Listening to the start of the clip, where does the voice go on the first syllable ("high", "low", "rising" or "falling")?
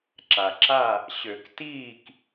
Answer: low